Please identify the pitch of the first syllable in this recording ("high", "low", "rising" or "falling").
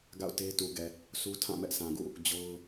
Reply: falling